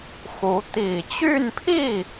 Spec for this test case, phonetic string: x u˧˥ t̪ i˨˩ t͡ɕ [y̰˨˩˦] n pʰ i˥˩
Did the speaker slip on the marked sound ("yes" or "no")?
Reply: yes